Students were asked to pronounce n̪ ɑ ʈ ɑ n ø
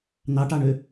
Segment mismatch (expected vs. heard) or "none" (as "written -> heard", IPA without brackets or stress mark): n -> ɳ